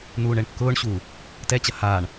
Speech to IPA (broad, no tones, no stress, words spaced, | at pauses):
nuːɳɛɳkːʊːɳɕuː | tɛt͡ɕɐ haːɳ